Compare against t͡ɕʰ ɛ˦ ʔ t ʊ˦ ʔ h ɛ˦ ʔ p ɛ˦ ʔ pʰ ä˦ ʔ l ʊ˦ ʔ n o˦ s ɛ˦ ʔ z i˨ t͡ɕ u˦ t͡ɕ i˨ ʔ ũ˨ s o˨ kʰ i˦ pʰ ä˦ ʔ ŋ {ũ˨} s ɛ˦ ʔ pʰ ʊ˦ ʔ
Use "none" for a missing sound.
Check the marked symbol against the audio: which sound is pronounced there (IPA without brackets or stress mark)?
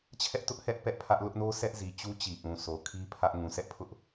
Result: ũ˨